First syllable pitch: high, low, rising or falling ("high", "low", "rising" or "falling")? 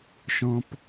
high